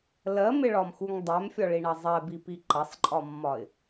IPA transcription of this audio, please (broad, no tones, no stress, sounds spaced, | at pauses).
l ɜ m ɪ ɭ ɒ m x u ŋ dˤ ɛ m fʲ ɒ ɭ i ɳ ɐ zˤ ɛ b i p i ǃ ɐ sˤ ǃʼ ɒ mː ɒ ɪ̯